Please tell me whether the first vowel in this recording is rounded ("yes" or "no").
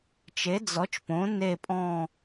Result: no